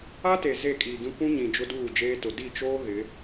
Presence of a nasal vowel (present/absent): present